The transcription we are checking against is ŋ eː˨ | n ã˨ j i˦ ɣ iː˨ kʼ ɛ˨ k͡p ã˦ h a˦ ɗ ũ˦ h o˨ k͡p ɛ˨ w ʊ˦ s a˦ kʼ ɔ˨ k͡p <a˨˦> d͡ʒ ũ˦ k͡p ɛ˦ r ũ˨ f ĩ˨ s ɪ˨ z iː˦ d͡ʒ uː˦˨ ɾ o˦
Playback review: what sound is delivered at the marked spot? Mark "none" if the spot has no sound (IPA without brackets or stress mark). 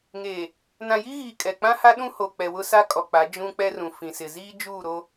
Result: a˨˦